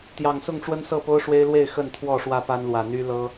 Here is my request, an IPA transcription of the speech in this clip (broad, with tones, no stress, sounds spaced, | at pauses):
t̪ j ɑ˨˩ ŋ s ʊ˥˨ ŋ ʈ͡ʂ w ə˦ n s ɤ˥˨ p o˦ ʊ̯ ʂ w e˦ ɪ̯ l w e˥˨ ɪ̯ x ə˥˨ n t̪ʰ w ɔ˥˨ ʂ w ä˥˨ p a˦ n l w ä˨˩ n̪ y˦ l ɤ˦